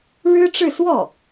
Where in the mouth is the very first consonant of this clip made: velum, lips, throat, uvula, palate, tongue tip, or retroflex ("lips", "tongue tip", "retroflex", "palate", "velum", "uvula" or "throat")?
retroflex